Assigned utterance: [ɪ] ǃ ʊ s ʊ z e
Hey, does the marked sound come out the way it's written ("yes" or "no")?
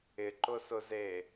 yes